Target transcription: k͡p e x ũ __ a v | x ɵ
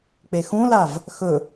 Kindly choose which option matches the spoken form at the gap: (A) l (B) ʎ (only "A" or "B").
A